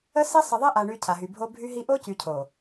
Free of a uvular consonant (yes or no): yes